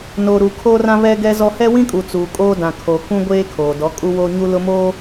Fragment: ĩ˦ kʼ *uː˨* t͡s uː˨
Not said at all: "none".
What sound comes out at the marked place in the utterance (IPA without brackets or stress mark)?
u˨